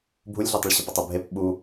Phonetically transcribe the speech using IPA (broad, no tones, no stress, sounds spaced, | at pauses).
bʱ u lʲ ɮ ʉ tˤ ə ɭ ɕ ə p ʌ tˤ u bʱ e p ɓ u